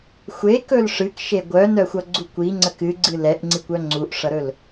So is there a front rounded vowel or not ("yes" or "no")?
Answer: yes